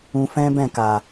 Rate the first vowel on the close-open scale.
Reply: close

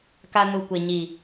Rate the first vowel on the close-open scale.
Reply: open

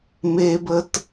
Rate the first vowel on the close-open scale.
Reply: mid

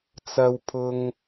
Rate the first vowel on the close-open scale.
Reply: open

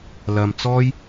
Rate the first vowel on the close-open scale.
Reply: open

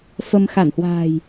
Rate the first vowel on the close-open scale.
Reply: mid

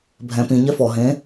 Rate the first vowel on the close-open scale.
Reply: mid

